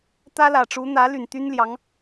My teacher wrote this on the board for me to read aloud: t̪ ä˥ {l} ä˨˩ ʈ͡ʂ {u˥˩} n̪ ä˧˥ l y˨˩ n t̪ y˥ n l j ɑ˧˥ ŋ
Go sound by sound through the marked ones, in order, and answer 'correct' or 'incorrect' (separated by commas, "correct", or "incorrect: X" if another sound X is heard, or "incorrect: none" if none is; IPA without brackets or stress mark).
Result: correct, incorrect: u˧˥